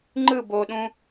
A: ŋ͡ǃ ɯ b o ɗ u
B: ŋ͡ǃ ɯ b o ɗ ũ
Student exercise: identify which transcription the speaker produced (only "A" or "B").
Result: B